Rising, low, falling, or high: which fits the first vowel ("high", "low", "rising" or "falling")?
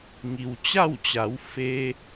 low